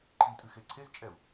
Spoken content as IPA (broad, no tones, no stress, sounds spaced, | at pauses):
ǃʰ i tʼ ɨ x e ǀʰ e z t͡ʃʼ ɛ u̯